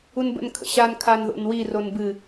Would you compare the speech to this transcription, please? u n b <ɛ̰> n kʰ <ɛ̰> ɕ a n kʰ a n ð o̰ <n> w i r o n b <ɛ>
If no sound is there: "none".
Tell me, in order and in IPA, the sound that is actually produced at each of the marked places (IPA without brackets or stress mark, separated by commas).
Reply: ə̰, ə̰, n, ɨ